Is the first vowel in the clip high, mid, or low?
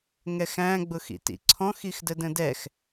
mid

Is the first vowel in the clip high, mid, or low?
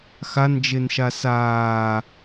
low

